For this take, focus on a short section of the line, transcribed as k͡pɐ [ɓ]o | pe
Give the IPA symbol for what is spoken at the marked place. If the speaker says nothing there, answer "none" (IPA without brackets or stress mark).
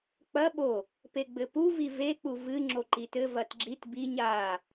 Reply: ɓ